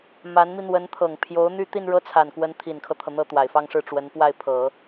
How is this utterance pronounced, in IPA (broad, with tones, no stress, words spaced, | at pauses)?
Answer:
ma˧˥nmi˧ n̪wə˧˥nt̪ʰɤ˨˩ŋ pʰjo˧˥ʊ̯n̪y˥ t̪i˥˧nɻɤ˥˩t͡sʰa˨˩nkwə˧˥n t̪ʰi˨˩nkʰɤ˦t̪ʰɤ˩ n̪ɤ˥˩t̪wa˨˩ɪ̯fɑ˥˧ŋʂɻ̩˥˩ ʈ͡ʂwə˧˥npwa˥˩ɪ̯pʰɤ˨˩˦